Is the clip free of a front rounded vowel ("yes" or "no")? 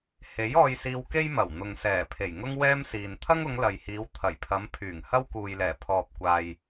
no